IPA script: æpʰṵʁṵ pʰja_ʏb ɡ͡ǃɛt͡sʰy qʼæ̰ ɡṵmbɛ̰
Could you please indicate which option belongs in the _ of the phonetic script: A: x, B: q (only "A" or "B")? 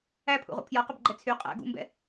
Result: B